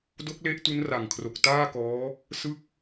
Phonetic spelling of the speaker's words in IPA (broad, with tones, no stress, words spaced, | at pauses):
do˦˥k̚le˦˥ʔ tu˦˥nra˨˩ŋkʰro˨˩k̚ taː˥˩kɔː˦˥ | sɯ˥˩k̚